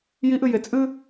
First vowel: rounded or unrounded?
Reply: unrounded